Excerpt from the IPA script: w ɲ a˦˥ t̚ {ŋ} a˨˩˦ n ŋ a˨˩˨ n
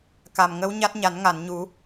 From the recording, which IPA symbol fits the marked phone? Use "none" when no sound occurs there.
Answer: ɲ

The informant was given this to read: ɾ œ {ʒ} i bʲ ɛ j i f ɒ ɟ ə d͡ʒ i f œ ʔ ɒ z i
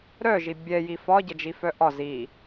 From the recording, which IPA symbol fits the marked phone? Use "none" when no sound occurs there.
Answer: ʒ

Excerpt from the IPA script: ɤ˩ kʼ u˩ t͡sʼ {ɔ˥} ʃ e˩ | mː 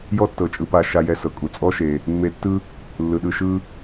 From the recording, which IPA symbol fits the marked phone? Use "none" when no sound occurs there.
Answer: ɔ˦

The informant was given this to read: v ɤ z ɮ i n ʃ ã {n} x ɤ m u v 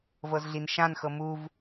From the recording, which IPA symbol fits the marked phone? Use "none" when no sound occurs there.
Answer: n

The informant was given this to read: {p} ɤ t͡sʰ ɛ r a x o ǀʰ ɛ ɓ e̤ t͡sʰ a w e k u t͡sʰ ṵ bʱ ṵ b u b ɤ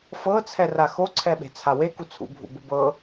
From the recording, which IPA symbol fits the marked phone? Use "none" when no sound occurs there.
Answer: f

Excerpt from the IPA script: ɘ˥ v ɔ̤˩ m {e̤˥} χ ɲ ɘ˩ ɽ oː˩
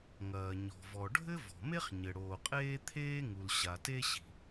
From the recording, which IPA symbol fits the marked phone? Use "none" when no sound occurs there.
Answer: e˥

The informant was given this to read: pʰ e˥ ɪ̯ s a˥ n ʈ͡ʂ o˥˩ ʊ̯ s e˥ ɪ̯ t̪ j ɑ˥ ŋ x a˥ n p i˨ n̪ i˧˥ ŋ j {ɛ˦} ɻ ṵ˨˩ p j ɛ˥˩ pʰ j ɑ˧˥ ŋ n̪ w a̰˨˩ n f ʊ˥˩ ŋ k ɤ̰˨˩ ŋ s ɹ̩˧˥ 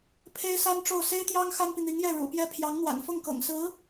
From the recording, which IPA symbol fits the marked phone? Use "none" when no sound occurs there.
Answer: ɛ˥˩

